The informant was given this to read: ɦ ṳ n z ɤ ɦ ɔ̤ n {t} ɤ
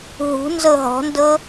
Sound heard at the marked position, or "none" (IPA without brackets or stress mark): d